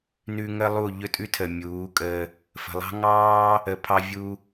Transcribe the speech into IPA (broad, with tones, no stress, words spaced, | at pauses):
nʉ˧ ŋə˦lˠu˦˨ ʎɵ˦tʼʉ˦tʰə˨ mʲuː˨˦kʼəː˧ | fə̤˨ lˠɑ̤˦ ŋɑː˦ | ə˨pʰɑ˧ vʲu˧